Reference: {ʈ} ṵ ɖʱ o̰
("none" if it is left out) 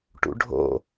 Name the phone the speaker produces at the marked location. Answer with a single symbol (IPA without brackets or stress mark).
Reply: ʈ